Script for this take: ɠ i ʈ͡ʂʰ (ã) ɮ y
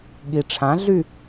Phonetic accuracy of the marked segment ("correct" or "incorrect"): correct